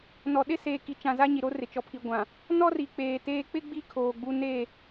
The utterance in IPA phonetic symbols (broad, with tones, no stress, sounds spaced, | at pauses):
n ɔ˨ ɗ ɪ˦ s eː˨ k i˨ t͡ʃ ã˨ z a˦ ɲ i˨ ɾ o˦ r ɪ˨ t͡ʃ ɔ˨ pʰ i˨ ɡʷ ã˨ | n ɔ˦ r i˨ k͡p eː˨ t eː˦ k͡p ɪ˦ ɡ͡b i˦ kʰ oː˨ ɡ͡b u˦ n e˦˨